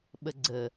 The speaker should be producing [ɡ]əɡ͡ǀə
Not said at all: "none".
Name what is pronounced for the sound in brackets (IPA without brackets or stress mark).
ɓ